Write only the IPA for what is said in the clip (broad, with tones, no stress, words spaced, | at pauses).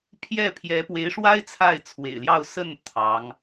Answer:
pʰjɛ˥˩pʰjɛ˧˥pwe˧˥ɪ̯ʂwa˥ɪ̯ t͡sʰa˥˩ɪ̯t͡sʰwḛ˨˩ɪ̯ljɑ˥˧ʊ̯ sə˥˩n t̪ʰɑ˧˥ŋ